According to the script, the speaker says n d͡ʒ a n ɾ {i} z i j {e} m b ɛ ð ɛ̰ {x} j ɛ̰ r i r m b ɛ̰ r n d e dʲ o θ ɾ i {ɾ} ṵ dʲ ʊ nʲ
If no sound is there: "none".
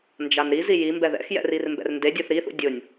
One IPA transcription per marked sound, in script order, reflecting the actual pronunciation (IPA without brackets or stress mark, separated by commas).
i, i, x, θ